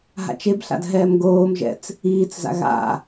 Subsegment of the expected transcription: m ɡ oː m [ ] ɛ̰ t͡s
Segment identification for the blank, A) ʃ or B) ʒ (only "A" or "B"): B